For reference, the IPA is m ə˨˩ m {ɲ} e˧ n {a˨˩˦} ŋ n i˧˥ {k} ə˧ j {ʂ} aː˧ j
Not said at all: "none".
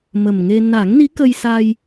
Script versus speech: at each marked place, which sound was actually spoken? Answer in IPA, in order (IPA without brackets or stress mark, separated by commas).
ŋ, a˨˩˦, k, s